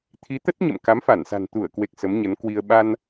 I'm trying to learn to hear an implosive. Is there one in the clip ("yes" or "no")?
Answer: yes